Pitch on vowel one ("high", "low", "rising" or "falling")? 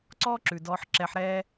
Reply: high